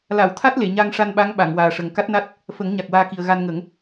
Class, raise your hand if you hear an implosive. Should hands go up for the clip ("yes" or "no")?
yes